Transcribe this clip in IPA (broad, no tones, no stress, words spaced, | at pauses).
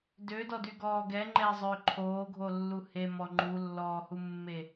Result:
dødɔdyɡɔː ɡɛŋ͡ǃɛzˤʏː ǃʰoːɡʱolːu hemɔ ŋ͡ǃulːɔːhumːe